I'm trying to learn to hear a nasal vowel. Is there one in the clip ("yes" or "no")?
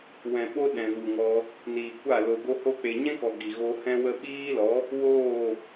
yes